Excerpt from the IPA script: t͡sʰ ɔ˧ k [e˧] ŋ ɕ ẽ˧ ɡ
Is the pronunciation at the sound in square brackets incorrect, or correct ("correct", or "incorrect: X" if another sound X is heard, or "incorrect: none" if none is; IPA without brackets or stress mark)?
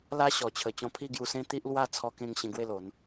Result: incorrect: ẽ˧